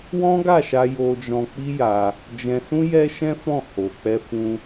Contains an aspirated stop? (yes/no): no